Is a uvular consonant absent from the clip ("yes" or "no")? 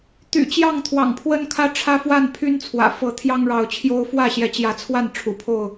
yes